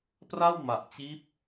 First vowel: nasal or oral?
oral